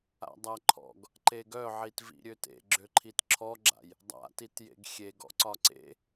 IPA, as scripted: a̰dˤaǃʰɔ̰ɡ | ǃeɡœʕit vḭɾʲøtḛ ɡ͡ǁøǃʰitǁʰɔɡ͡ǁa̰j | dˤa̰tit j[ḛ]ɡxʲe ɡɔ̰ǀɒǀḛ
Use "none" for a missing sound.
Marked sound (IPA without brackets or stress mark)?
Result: ḛ